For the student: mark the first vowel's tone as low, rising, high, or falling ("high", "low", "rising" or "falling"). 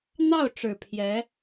falling